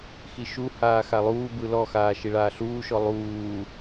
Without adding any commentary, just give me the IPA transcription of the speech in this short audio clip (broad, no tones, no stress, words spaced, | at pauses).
xiʃuhaː xalˠuːbɯ lɔxaː ʃiɭaːɬuːʃɔ lˠuː